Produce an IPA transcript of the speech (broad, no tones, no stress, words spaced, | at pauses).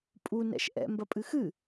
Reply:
pʼu nɛ̰ʃʔɛ̰ mbɐpʼɨxɨ